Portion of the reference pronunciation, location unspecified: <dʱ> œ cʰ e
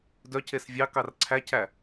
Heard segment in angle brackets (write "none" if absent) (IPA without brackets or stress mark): d